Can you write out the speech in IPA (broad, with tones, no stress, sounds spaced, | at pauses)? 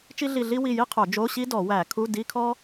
t͡ʃ i˥ ɮ i˦˨ ɮ i˥ w i˦˨ j i˥ qʰ o˧˩˧ d͡ʒ o˧˥˧ ɕ i˥ d ɔ˧˩˧ w æ˧˩˧ kʰ u˧˥˧ d i˧˥˧ kʰ ɔ˥